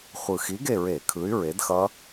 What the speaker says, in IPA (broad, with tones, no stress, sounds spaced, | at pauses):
χʷ ɯ˨˩ x i˨˥ ɡ e˦˨ ɹ e˧˩˧ kʰ ɯ˨˥ y̯ ɹ e˨˥ d x ʌ˦˥